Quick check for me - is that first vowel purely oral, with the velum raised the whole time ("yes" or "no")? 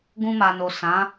no